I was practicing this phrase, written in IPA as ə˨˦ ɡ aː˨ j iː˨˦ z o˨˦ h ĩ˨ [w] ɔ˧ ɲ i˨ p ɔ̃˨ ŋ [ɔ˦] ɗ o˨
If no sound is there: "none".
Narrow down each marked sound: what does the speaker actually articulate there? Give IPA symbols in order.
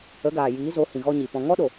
ɣ, ɔ˦

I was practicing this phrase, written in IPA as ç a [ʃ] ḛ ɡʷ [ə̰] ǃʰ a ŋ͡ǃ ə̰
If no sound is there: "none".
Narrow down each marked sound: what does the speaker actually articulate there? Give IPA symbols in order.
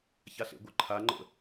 ɬ, ə

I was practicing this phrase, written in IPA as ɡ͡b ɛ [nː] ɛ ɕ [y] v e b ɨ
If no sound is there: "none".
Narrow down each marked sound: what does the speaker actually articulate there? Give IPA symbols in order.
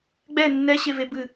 nː, e

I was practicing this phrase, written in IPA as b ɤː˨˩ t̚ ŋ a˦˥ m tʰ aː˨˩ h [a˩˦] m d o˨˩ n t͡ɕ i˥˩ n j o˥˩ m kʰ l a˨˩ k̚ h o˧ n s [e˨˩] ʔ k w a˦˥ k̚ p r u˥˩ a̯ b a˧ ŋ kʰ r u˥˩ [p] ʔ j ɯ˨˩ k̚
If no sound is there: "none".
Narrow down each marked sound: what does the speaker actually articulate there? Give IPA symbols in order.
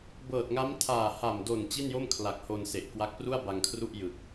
a˨˩, e˨˩, none

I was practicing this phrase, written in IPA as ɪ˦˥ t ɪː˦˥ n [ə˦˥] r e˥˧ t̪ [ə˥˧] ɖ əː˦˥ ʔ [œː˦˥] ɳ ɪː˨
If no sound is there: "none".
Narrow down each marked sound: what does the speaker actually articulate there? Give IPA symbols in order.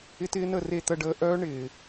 ə˥˧, ə˥˧, œː˦˥

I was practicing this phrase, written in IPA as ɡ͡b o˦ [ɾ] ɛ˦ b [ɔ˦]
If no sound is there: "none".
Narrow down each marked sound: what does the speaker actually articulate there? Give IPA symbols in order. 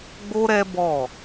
ɾ, ɔ˦˨

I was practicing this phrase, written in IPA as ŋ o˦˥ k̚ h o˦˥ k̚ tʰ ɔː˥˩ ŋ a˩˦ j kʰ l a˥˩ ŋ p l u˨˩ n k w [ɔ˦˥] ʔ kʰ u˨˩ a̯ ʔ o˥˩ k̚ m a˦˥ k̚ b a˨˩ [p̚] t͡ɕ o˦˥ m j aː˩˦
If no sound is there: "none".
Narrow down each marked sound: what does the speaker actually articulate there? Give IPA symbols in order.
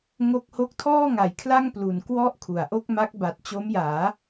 ɔ˥˩, t̚

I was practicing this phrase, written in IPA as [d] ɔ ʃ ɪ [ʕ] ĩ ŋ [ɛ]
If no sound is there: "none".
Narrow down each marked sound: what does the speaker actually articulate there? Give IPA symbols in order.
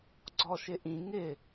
ɡ͡ǀ, ʔ, ɪ

